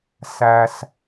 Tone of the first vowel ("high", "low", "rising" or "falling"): low